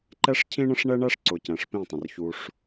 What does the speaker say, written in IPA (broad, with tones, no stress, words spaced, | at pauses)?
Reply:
ǃɛ˦ʂcʰĩ˦ɳə̃˦ʂ ɳɛ˦ɳæ˦ʂǀʊ˨ cɛ̃˨ʂpĩ˦˨tˤə̃˨r çu˧ʂ